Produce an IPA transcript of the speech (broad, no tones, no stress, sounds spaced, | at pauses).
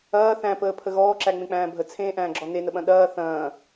ɐː θ æ̃ p əː pʰ ə ɣ ɔː ǁ æ ŋ͡m ẽ k͡p æ̃ː bʱ ə t͡sʰ ẽː ʔ æ̃ː ɡ͡ǁ ɔ n e n ə ɓ ɐ̃ ɗ ɐː θ ɐ̃ː